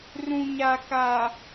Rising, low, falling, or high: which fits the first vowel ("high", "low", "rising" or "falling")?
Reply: low